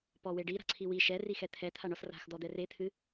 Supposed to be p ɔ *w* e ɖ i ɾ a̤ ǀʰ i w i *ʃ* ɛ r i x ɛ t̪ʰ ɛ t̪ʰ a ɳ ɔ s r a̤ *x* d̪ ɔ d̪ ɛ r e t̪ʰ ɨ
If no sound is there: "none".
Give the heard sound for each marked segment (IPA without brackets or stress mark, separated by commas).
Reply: w, ʃ, x